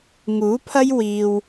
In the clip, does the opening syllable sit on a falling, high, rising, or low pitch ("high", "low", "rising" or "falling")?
rising